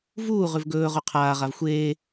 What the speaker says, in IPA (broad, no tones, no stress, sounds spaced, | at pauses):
v uː ʁ ʉ v ɡ ɵː ʁ u qʰ aː ʁ a v xʷ eː